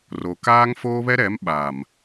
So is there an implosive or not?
yes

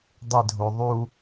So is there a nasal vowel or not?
no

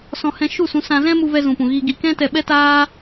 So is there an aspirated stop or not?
no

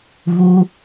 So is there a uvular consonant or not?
no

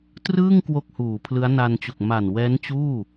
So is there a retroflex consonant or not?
no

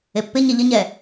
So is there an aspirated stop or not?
no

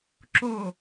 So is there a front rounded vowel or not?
no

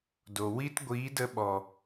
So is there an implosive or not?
yes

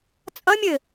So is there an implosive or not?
no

